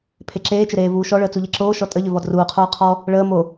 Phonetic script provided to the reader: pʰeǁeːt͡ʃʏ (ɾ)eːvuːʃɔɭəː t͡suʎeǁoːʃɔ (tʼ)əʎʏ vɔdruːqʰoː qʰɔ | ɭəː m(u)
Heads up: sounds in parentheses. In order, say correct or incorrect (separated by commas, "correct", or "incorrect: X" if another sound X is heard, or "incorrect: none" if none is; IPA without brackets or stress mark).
correct, correct, incorrect: o